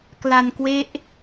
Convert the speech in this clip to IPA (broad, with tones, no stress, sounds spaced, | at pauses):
k l a˧ n k w e˦˥ ʔ